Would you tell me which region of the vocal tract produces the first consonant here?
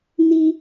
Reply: tongue tip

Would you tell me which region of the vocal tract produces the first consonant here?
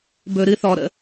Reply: lips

